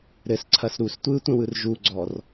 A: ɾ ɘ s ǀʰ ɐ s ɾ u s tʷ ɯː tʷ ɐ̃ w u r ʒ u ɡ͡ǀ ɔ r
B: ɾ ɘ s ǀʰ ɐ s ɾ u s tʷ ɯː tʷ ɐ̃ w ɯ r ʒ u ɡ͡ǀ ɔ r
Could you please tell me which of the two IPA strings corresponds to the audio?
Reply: B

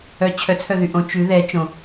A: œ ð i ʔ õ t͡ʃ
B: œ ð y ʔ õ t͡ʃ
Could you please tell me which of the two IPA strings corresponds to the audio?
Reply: B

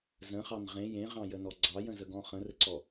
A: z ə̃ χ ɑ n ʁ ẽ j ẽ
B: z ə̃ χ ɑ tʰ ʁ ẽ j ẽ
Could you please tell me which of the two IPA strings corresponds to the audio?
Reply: A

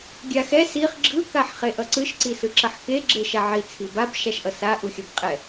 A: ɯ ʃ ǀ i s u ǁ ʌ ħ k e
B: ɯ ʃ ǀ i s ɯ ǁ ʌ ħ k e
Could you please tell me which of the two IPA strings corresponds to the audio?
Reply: B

